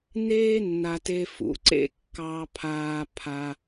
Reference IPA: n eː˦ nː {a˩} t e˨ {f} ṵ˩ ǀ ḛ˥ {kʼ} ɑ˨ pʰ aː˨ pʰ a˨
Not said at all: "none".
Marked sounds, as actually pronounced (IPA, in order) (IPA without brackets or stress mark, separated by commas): a˩, f, kː